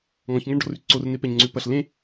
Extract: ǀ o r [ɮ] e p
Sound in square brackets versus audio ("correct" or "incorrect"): incorrect